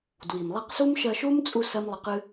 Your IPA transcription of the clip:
d w i˨ m lˠ i˧ q s u˦ m ʃ ɜ˧ ʃ u˦ m t͡sʼ u˧ s ɜ˦ m lˠ ə˧ q ɨ˦

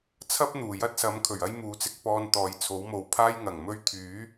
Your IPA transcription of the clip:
t͡sʰ ɐ˥ p̚ n̪ uː˨˩ j ɐ˥ t̚ s ɐ˨˥ m kʰ ɵ˨˩ ɥ ɐ˥ j m uː˨˥ t͡s ɪ˨˥ k̚ p ɔː˧ n t̪ ɔː˨ j t͡sʰ o˨˥ w m o˨˧ w pʰ aː˥ j ŋ ɐ˨˩ ŋ m ɵ˥ ɥ t̪ʰ yː˨˥

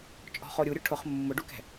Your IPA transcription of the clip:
t͡ʃʼ ɔ̤ χ o ɾʲ u ɾʲ ʊ ʈʰ ʊ χ mː ʊ ɖ u k ɛ̤

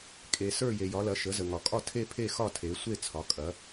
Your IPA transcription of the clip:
kʼ e˩ s ə˞˦˨ j e˩ j ɒ˩˧ l ɐ˩˧ ʃ ə˩˧ z ə˩ ŋ ɒ˩ kʼ ɒ˦˨ tʰ e˦˨ pʰ e˦˨ x ɒ˦˨ tʰ e˩˧ sʷ e˦˨ t͡sʰ ɒ˩˧ kʼ ɐ˩˧

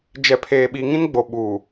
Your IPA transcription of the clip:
d͡ʒ ɛ˨ pʰ eː˨ ɓ i˨ ŋ ĩ˦ n ɡ͡b o˨ ɓ uː˨

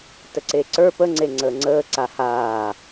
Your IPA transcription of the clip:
t ə ǀ e ǀ ə˞ p ə ŋ͡ǀ e ŋ͡ǀ əː ŋ͡ǀ əː ǀ a h aː

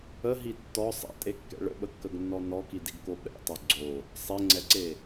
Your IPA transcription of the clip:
ə ɦ i tː ɔ sˤ ɛ̰ tʼ e kː ɛ̰ ɭ ə̰ ɓ ə kː ə ɡ nː ɔ n ɔ k i d i ɡ k o ɓ ɛ̰ tˤ o ɡ͡ǀ o | sˤ e ŋ͡ǀ ɛ ǀ e

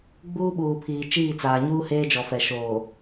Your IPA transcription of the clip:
ɡ͡b uː˦ ɓ uː˨ pʰ iː˨ t͡ʃ iː˦˨ t͡s aː˨ ɲ uː˦ h eː˦ d͡ʒ ɔ˨ f ɛ˨ ʃ oː˨

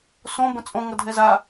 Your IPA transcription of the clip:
s õ b ə̃ t͡sʼ õ ŋ ʌ dʱ ɛ z a

